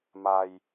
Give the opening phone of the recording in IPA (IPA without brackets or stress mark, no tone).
m